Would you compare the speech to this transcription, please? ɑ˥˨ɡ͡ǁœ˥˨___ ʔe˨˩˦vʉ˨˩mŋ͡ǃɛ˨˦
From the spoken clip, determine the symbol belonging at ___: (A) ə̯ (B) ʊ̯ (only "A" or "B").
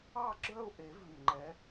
B